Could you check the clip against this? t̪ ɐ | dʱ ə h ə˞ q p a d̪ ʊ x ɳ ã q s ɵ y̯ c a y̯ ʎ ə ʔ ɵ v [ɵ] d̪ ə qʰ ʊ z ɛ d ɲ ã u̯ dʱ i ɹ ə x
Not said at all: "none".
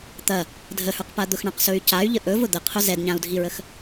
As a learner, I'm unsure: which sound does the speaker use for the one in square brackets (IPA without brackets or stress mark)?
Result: ʊ